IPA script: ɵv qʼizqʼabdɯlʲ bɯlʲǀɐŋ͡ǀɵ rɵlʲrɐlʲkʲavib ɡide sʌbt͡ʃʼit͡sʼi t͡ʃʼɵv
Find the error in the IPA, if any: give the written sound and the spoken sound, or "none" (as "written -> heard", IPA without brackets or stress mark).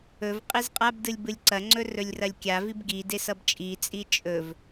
none